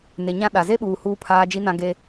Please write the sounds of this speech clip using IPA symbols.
n e˨ ɲ ã˦ ɗ a˨ z e˦ ɓ uː˨ h uː˦ pʰ aː˦ d͡ʒ i˦ n ã˦ ɡ e˦

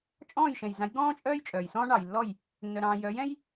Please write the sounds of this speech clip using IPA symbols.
t͡ʃʼ ɔ̃ː˥˩ j ʃ ɛ̃˩ j z ã˩˥ j ɡ ɔ̃ː˥ t͡ʃʼ œː˥ j t͡ʃʼ œː˩ j s ɔ̃ː˥ ɳ ɑ˩ j lː ɔ˥˩ j | nː œ˩ ɾ ɑ̃ː˩ j œː˩˥ j ɛ̃˥ j

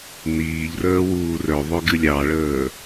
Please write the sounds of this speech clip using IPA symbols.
n iː ʎ r əː w uː r œ ðˤ œ ɡ ɨ lʲ ɑ ɭ əː

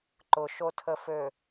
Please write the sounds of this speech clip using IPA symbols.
ǃ ʊ ʃ o tʰ ə f ø

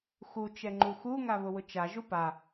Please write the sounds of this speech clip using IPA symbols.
x u t͡ʃ ɛ ŋ͡ǃ u x u ŋ a β ʊ w ʊ t͡ʃ a ʒ u p a

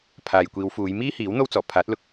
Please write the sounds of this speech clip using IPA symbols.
pʰ aː˨ j kʷ iː˨˧ w f uː˨˧ j m iː˥ h iː˨˥ w n̪ o˥ w t͡s ɔː˨˩ pʰ aː˨˥ t̚ l ʊ˧ k̚

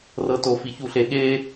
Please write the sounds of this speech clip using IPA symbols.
r ɤ t o f i ç u ɬ e ɠ e

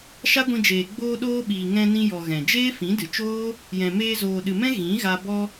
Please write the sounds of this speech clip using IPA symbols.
ʃ a˦ ɡʷ ĩ˧ d͡ʒ eː˨ ɡ͡b oː˧ ɗ oː˧ ɓ iː˨ ŋ ɛ̃˧ n ĩ˧ j ɔ˨ ɣ ɛ̃˨ d͡ʒ eː˦ f ĩ˨˦ d ɨ˨ t͡ʃ oː˦ | j ɛ̃˨ m eː˧ z oː˨ ɗ ɨ˨ m ɛ̃˦ ɣ ĩ˨˦ ɣ a˧ b ɔ˧

